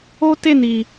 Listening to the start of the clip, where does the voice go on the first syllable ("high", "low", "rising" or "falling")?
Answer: high